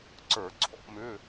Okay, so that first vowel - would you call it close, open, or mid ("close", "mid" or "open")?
mid